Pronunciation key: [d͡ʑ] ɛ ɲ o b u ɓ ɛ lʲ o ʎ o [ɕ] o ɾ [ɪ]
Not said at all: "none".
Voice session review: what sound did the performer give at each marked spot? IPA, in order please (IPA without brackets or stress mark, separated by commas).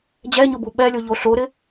d͡ʑ, ɬ, ɪ